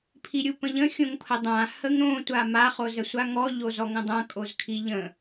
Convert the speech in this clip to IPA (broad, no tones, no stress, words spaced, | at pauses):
pʰiɾʲupə̃ʎə̃ xʲõŋpʰədˤã həŋɾõ tʷama χozəsʷaŋɔ ʎozɔŋə̃dˤã kʼozkʰiʎə̃